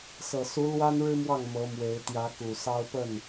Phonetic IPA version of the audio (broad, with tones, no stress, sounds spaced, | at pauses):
s ɤ˨˩ s u˧˥ l w a˥ n ɻ ɻ̩˥ m w ɑ˥˩ ŋ m ɤ˧˥ m w e˧˥ ɪ̯ t̪ j ä˧˥ k u˨˩ s ɑ˥ ʊ̯ p ə˥˩ n